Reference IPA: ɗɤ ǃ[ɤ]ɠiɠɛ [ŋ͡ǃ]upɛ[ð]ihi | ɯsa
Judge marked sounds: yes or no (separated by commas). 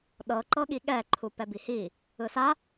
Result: yes, no, no